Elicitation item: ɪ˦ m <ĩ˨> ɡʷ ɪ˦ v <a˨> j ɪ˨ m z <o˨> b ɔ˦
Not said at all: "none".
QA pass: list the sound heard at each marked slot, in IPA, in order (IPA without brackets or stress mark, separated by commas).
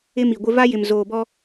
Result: i˨, a˦, oː˨